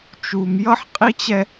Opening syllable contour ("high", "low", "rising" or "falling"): low